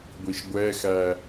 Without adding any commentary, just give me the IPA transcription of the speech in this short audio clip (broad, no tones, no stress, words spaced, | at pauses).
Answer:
ɡʷiʃɡʷɛxæ